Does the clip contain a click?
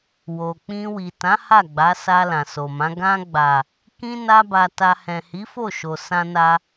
no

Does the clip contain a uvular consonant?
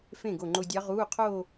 yes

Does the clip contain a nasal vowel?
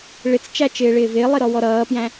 yes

